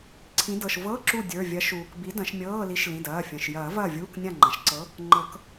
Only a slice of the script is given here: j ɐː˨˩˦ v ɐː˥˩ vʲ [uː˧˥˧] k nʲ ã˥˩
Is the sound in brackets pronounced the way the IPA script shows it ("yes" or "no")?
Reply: yes